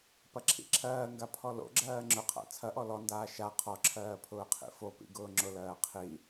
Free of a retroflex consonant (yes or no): yes